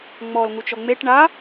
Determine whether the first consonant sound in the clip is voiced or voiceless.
voiced